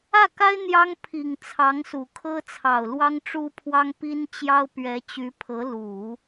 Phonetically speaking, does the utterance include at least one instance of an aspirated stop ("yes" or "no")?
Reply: yes